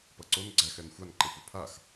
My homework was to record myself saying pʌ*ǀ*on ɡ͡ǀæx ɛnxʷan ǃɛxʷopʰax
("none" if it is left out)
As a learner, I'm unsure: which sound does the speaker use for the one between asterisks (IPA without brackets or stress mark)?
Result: ǀ